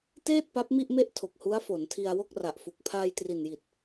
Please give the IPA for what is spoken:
teː˥˩t̚ pa˦˥p̚mi˥˩ʔme˥˩ʔ tʰo˨˩k̚hu˦˥a̯fo˩˦ntʰi˧a̯ wo˥˩k̚ra˨˩ʔfu˨˩k̚ pʰaː˧jtri˨˩nji˨˩t̚

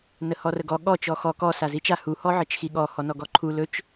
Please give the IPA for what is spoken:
nəhɔrəɡɔ ɠɔ t͡ʃɔxɔ kɔ sazit͡ʃa hu hɔʕət͡ʃxiɠɔ hɔnɔɡɔǃʰu lɵt͡ʃ

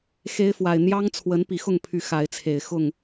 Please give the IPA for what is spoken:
xe˦ɪ̯fwa˨˩ɪ̯ n̪jɑ˦ŋt͡sʰwə˨˦n pi˨˩xʊ˥˨ŋpʰy˨˩ xa˨˦ɪ̯t͡sʰe˨˩ɪ̯ xʊ˥˨ŋ

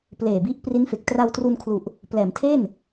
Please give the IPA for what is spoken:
pleː˨˩bi˦˥ʔ pri˦˥nfe˨˩k̚ tra˧wtru˧nkʰlu˨˩ʔ | plɛː˩˦mtʰe˥˩n

